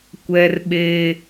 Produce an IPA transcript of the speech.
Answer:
kʷ ɛ˦ r ɓ e˦

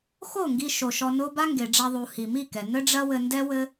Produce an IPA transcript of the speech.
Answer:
x o˦˨ ŋ ɡ i˧ ʃ o˨ ʃ ɔ˧ n o˦ b a˦ ŋ ɡ e˨ ɖ͡ʐ a˧ ðˤ u˨ h i˨ m i˦˨ k ɛ˨ n ɘ˦ ɖ͡ʐ ɐ˦ w ɘ˧ n d ɛ˦ w ɘ˦

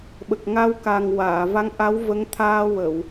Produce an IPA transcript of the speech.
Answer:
ɓ ə˨˩ k̚ ŋ a˧ w k a˨˩ ŋ w aː˨˩˨ v a˧˥ ŋ ʔ a˧˥ w v ə˧˥ ŋ t̪ʰ aː˧ w ə˨˩˨ w

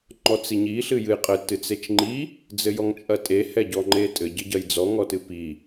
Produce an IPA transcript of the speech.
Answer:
ŋ͡ǃ ɔ t͡s i ɲ i ɬ ɨ j ɨ j qʼ ɘ t ɨ t͡s e t͡ʃ ŋ͡ǃ i | d͡z ɘ j ɔ ŋ t͡ʃʼ ɐ tʼ e h ɛ ɟ ɔ ŋ͡ǃ e tʼ ɘ ɟ ɘ ɟ ɐ j d͡z ɔ ŋ ɔ t ɨ p i

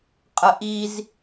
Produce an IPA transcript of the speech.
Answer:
qʼ ə ʔ i z

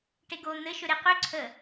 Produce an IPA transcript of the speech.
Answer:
ʈ e ɡ o n̪ ɘ ʃ ɵ ɾ e q ø ǀʰ ə

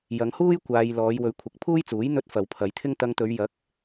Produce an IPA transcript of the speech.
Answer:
j ɐ˨˧ ŋ h uː˥ j kʷ aː˧ j l ɔː˨˧ j w ɵ˨˧ ɥ kʷʰ ɐ˨˥ k̚ pʰ uː˥ j t͡s uː˨˥ j n̪ ɵ˧ t̚ f ɐ˨ w pʰ ɐ˨˧ j t̪ʰ ɪ˥ ŋ t̪ ɐ˧ ŋ t̪ ɵ˨˧ ɥ j ɐ˨˥ k̚

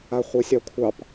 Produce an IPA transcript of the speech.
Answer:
a χʷ e sʲ ɑ kʷʰ ɑ p

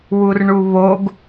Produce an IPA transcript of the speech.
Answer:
w u r ɳ u β o ɡ

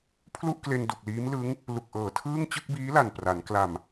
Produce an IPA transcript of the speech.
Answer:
pʰ l u˥˩ ʔ k l e˧ n d u˨˩ k̚ l iː˦˥ m l ɯ˦˥ ŋ | l u˨˩ k̚ ʔ ɤː˨˩ tʰ ɯː˥˩ ŋ t͡ɕ ɯ˥˩ k̚ b iː˦˥ l a˨˩ n p r a˩˦ n k l a˨˩ m

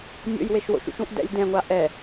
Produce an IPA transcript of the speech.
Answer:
nʲ o̰ j w e ʃ w o̰ ʃ ṵ ʃ ũ ʔ d ɛ̰ lʲ d ɛ̃ ŋʷ a ʔ ɛ

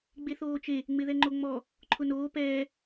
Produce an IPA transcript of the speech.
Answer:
ɡ͡b e θ oː t͡ʃ e | ŋ͡m ɪ ð ɛ ŋ͡ǃ o ŋ͡m ɔ | ǃʰ ʊ n oː p ɛː

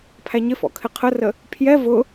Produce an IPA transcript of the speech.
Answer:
pʰ æ ɲ ɪ f ɔ̰ kʰ ɪ qʰ ə r ə | pʰ j ɛ v ʊ

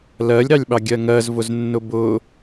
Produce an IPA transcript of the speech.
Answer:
l ɜ lʲ ɾ ɑ lʲ ɓ ɑ ɡʲ ɜ ŋ ɜ z v ʊ z nː ʊ b ʊ

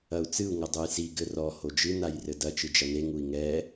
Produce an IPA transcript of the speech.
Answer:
ɐ u̯ t͡s ɨ u̯ ŋ ɐ dˤ u j s i ɡ ɘ r ɔ h o d͡ʒ ɨ n a j r ɘ d ɐ t͡ʃ ɨ d͡ʒ ɐ n e ŋ u i̯ ŋ ɛ

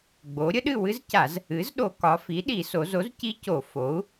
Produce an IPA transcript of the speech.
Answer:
ɡ͡b o˩˥ ɾʲ ə˦˥ ɗ ɨ˥˨ w ɨ˦˥ z c a˧˩˧ z | ɨ˩˥ z ɗ o˧˩˧ k ɒ˩˧ f i˩˥ ɗ i˧˩˧ s o˩˧ z o˩˥ z c i˦˥ c o˧˩˧ f o˩˥ u̯

